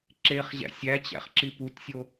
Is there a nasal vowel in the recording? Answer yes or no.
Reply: no